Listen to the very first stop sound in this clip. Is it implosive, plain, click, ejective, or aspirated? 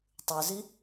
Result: plain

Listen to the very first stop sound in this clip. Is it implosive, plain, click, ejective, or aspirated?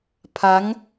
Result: aspirated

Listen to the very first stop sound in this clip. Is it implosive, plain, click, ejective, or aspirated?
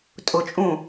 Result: ejective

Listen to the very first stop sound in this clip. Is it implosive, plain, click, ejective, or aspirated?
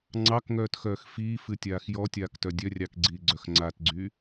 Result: click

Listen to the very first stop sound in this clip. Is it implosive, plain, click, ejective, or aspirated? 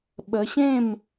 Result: implosive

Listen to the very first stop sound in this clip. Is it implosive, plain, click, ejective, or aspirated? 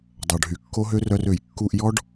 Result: plain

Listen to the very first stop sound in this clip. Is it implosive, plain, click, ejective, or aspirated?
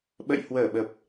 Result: implosive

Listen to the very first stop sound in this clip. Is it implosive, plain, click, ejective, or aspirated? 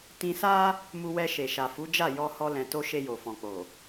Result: plain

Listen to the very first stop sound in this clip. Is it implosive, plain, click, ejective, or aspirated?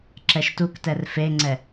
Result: click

